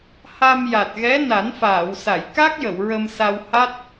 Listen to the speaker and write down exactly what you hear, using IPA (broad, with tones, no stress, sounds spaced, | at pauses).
h a˧ m j a˨˩ t̚ ɣ ɛ˧˥ n a˨˩˦ n f aː˨˩˨ w s a˨˩˨ j k a˦˥ k̚ j ə˨˩˨ w ɹ ə˧ m s a˧ w h a˦˥ t̚